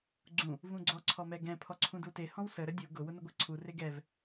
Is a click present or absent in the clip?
present